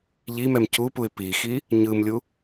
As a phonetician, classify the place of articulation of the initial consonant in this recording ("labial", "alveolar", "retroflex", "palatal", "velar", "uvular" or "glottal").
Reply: palatal